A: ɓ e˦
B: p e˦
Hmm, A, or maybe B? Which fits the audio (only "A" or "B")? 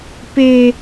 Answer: B